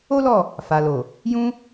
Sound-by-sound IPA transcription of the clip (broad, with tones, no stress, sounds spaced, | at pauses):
o˦ l ɔ˦˨ | f a˨ l o˨ | j ũ˧